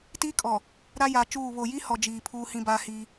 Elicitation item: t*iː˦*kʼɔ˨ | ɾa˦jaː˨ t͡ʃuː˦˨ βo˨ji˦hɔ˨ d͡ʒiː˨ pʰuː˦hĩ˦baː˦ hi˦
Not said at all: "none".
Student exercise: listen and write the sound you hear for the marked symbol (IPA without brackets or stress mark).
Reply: iː˦